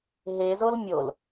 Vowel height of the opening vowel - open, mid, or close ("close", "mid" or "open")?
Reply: mid